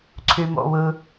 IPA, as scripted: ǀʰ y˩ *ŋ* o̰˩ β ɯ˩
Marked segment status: incorrect: m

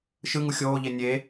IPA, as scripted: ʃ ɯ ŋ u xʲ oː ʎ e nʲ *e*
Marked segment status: correct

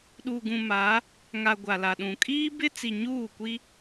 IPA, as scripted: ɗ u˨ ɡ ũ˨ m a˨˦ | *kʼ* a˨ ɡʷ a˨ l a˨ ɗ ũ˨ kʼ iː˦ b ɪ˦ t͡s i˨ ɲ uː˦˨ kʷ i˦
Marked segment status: incorrect: ŋ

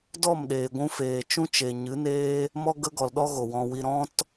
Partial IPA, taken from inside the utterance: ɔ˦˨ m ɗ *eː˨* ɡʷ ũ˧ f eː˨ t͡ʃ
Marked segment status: correct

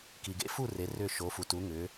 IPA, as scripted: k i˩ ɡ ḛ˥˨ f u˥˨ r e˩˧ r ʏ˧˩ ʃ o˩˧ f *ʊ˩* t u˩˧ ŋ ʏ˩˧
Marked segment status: incorrect: u˩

